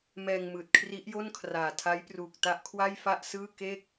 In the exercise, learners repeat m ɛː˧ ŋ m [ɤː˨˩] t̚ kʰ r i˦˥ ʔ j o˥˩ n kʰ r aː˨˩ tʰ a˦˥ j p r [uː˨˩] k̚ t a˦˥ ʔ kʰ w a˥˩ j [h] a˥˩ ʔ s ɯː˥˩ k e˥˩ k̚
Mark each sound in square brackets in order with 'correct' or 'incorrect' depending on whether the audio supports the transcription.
incorrect, correct, incorrect

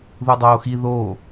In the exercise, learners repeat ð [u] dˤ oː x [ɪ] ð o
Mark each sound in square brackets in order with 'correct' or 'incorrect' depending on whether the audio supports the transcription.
correct, incorrect

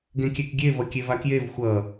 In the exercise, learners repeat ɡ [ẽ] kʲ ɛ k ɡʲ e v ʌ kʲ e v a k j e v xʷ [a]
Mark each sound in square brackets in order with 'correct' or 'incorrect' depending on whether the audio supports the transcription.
correct, incorrect

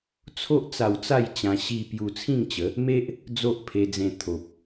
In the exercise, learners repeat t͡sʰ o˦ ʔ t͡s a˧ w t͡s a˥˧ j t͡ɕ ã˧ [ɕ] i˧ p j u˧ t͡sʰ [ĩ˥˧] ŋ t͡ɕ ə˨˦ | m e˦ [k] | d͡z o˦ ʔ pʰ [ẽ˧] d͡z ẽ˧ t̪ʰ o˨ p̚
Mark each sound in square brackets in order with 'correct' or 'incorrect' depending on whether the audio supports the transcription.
correct, correct, incorrect, incorrect

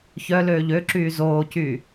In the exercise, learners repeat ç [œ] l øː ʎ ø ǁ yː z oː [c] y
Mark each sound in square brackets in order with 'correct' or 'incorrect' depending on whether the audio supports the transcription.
correct, correct

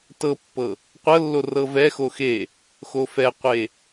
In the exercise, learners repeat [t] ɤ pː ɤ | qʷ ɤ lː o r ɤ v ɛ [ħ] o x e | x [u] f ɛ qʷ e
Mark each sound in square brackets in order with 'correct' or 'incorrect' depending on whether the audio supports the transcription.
correct, incorrect, incorrect

